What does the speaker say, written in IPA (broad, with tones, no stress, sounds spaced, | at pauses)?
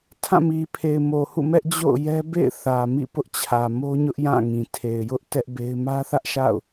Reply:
tʰ ã˦˨ m i˨ pʰ e˨ ɪ̯ m o˨ h ṵ˦˨ m ɛ˦ ʔ d͡ʑ o̰˦˨ ʊ̯ j ɛ˦ b ḛ˦˨ ɪ̯ θ ä˨ m ḭ˦˨ p ʊ˦ ʔ t͡ɕʰ ä˨ m o˦ ɲ ʊ˦ ʔ j ã˦˨ ŋ ĩ˨ tʰ e˨ ɪ̯ j ʊ˦ ʔ t ɛ˦ ʔ b e˦ ɪ̯ m ä˦ θ ä˦ ʔ ʃ a̰˦˨ ʊ̯